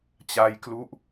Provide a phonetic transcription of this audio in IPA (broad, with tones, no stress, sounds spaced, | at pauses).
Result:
t͡ɕ a˧ j k l u˦˥ ʔ